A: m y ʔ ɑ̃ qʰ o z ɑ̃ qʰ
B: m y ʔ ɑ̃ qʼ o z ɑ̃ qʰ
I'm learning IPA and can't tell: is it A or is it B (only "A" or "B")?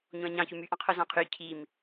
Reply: A